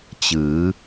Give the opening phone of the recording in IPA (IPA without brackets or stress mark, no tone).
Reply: t͡ɕ